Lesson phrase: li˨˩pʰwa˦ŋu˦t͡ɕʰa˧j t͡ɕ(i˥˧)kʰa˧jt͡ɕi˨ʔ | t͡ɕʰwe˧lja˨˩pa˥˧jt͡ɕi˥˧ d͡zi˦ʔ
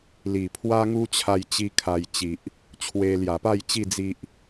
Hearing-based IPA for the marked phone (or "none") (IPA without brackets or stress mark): i˦